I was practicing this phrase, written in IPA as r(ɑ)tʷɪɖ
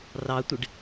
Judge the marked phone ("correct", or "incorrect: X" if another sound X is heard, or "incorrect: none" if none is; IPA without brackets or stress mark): correct